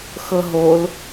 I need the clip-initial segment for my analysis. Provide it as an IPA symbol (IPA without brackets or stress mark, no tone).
x